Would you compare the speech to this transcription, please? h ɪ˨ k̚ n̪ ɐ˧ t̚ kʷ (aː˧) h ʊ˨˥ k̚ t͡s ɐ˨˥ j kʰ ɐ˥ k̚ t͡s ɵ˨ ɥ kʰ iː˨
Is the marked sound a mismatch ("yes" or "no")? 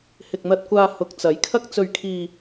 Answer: no